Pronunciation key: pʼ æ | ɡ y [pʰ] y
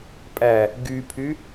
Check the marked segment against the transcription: correct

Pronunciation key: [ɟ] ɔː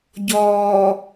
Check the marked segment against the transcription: correct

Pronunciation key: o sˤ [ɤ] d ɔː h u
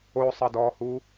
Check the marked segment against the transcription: correct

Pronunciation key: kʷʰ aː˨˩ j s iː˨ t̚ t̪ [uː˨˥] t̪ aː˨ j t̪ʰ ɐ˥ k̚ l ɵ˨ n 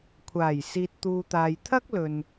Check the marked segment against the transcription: incorrect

